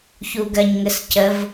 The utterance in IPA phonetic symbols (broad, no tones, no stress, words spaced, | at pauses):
çuɡɜɲŋəscəv